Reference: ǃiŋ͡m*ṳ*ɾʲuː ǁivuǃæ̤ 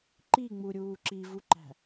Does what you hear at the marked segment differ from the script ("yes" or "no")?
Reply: yes